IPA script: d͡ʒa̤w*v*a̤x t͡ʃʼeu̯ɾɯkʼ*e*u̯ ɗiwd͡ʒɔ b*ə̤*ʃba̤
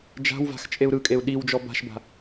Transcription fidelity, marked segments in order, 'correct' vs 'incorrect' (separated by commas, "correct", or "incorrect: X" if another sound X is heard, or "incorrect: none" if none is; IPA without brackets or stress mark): correct, correct, incorrect: a̤